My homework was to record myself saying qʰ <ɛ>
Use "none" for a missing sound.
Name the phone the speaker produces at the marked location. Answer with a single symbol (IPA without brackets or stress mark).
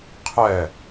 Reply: ɛ